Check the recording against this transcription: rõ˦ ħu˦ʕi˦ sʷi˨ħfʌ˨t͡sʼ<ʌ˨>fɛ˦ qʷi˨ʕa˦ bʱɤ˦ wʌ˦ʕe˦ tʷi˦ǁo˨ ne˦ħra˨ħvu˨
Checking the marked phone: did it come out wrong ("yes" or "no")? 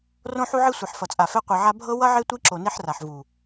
yes